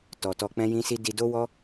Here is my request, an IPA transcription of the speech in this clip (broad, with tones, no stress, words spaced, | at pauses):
tɔ˨tɔ˧ k͡pɛ̃˦jĩ˦si˦ di˧do˦wɔ˦